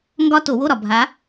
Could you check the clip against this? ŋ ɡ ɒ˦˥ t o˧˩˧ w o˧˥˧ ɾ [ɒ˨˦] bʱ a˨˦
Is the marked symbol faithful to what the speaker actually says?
no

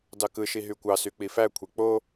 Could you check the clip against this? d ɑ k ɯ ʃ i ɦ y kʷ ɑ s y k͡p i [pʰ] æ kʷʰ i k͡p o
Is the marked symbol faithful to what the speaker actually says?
no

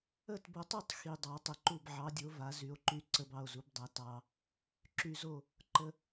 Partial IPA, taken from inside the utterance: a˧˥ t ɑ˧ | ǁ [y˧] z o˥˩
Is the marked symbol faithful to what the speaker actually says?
yes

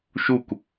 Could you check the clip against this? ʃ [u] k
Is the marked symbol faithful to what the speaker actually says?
yes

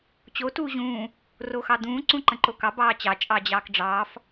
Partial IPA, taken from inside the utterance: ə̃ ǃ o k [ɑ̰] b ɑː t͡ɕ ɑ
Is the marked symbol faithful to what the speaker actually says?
no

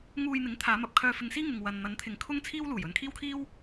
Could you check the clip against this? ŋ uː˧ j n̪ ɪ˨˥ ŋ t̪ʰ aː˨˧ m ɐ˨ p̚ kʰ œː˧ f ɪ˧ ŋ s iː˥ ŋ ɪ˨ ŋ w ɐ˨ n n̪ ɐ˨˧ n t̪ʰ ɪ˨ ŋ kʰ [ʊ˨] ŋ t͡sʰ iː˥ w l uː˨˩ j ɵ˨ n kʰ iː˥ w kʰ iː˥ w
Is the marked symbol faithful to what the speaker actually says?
no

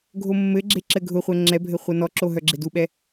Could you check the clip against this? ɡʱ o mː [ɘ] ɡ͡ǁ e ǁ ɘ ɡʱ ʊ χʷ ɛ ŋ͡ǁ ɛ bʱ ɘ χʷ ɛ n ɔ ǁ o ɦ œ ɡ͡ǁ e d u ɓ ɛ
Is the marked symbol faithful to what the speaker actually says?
yes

